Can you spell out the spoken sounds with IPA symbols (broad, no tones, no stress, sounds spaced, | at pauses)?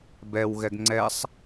b ɛ w ɣ ɛ ɡ ŋ͡ǀ ɛ sˤ